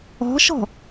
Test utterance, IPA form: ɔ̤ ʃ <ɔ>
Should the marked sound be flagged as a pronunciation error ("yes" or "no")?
yes